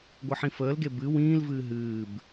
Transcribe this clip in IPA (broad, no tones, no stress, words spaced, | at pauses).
ɡʷəħĩfəːlɡe bɨ wĩːlvɨː ɦɨːb